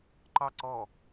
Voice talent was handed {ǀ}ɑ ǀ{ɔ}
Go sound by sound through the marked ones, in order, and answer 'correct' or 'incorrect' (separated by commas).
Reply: incorrect, correct